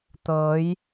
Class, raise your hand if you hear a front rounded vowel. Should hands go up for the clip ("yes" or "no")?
no